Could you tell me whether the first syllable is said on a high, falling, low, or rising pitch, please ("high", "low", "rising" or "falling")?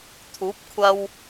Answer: rising